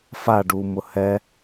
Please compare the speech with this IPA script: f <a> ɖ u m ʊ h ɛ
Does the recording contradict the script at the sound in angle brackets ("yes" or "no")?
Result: no